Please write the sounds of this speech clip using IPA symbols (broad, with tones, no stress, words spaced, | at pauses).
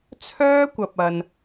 t͡sʰœː˥kʷɐ˨p̚ɐ˨n